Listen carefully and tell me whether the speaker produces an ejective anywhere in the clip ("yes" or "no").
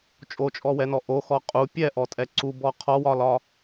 yes